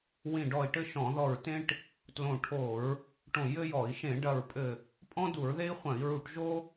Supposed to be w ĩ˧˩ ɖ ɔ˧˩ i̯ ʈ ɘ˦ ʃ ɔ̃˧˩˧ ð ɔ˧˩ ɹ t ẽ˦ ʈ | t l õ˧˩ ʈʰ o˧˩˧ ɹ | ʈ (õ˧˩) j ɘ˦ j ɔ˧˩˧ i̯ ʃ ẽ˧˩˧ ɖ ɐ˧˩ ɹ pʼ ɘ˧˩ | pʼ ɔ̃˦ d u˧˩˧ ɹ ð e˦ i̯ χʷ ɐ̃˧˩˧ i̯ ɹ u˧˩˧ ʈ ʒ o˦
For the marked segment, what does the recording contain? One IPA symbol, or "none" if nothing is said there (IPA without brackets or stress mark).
õ˧˩